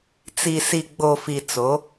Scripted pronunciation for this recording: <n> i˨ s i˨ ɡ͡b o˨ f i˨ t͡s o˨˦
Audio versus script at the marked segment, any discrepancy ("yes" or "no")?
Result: yes